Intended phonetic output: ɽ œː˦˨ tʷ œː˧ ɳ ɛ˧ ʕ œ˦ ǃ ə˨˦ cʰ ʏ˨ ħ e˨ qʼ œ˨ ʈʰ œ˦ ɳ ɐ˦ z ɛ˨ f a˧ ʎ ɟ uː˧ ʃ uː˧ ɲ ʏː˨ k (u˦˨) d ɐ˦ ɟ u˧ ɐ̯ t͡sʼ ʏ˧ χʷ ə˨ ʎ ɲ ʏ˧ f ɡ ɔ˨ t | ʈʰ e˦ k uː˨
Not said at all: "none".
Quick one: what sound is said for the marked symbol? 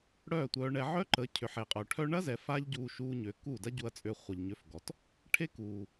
u˦˨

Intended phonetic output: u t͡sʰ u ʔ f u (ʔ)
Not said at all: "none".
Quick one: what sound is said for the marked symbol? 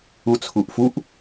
ʔ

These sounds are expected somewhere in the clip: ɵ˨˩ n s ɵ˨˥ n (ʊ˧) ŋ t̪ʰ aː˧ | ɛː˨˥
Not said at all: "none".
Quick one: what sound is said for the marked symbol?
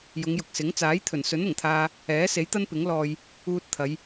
ʊ˨˩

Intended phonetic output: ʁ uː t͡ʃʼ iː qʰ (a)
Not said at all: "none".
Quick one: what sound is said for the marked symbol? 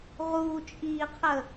ə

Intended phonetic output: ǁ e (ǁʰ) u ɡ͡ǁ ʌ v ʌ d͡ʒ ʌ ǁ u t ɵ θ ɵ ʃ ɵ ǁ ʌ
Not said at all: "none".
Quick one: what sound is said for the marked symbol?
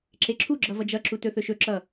ǁʰ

